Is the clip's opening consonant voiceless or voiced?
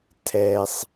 voiceless